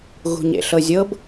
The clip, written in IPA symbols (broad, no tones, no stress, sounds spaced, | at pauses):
ɣ ṳ ɲ ḛ ɬ ɤ zʲ ɤ b